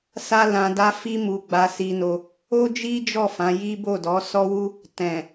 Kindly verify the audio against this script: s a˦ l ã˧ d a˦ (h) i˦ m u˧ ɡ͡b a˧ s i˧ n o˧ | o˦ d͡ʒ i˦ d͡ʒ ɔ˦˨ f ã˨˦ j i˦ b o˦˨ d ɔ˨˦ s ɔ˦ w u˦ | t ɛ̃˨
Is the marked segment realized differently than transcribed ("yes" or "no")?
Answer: yes